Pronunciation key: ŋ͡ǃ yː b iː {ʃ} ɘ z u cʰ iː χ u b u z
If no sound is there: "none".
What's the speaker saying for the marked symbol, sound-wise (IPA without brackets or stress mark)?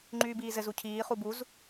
z